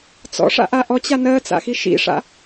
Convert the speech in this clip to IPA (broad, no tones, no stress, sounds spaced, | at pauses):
t͡s ɔ̰ ʂ a̰ ʔ a ʔ ɔ t͡ɕ a n ɜ t͡s a̰ x i ʃ ḭ ʂ a̰